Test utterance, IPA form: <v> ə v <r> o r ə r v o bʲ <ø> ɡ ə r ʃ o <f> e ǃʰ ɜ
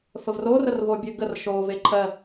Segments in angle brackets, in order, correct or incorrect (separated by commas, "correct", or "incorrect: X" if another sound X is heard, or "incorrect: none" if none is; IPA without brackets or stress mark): incorrect: f, correct, correct, incorrect: v